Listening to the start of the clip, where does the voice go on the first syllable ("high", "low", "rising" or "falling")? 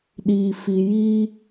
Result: low